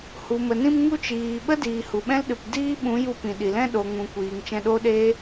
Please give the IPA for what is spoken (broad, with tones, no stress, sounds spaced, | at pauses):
h u˨ m ə˨ n ĩ˧ m ŋ u˧ t͡ʃ iː˨ ɓ ə˦ d iː˨ h u˨ ɓ ɛ̃˦ l ɗ ɨ˨ p d iː˦ ɓ ũ˨˦ j u˧ p ĩ˨ ɗ i˨ l ɛ̃˦ ɗ o˨ ŋ ũ˨ kʷ iː˨ ŋ t͡ʃ ɛ̃˧ ɗ o˦ ɗ eː˦